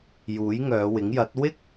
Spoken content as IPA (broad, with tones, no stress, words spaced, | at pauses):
juː˨˥jŋœː˨˧wɪ˨˥ŋjɐ˨˥t̚ wɪ˥k̚